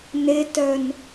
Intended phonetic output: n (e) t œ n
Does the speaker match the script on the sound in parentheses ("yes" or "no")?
yes